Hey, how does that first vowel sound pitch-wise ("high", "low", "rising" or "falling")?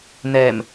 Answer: low